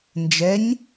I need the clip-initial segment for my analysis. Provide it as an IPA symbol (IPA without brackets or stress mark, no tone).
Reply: n